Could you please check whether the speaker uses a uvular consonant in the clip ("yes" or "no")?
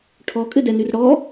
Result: no